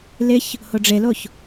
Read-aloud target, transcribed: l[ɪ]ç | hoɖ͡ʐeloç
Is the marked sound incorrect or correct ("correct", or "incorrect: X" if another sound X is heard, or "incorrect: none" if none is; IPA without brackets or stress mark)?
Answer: correct